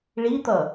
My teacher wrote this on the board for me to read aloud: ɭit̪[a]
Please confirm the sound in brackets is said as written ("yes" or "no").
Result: no